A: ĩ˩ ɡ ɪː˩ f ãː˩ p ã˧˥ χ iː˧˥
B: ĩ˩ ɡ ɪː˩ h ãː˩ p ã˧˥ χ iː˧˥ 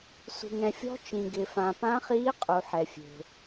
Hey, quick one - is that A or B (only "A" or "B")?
A